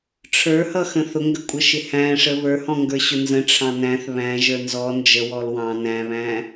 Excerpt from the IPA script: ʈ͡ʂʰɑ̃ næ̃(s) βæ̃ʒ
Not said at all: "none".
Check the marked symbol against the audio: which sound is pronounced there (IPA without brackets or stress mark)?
θ